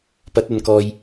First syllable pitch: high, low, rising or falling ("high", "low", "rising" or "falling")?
rising